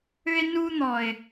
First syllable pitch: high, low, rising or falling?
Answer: high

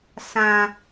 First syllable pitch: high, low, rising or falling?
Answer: low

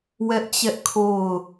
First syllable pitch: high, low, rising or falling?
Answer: high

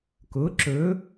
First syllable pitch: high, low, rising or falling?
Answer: rising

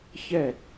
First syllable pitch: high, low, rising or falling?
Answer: falling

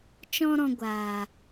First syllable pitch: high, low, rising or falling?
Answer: high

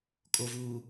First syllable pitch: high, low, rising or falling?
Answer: low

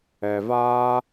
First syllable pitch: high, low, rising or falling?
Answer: low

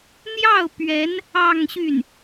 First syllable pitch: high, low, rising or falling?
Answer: falling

